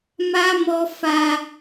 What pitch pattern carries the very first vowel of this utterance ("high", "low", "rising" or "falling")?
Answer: high